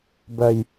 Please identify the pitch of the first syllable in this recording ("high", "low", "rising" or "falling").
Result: low